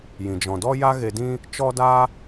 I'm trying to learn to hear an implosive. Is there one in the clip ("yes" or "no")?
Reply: no